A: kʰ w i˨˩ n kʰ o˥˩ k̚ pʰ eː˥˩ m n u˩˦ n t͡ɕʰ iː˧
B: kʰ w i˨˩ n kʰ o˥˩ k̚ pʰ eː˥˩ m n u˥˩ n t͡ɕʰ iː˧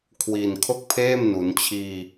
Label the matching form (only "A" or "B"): A